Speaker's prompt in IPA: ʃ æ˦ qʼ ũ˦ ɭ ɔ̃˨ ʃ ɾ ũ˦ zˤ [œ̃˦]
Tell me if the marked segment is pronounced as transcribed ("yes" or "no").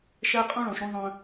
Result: yes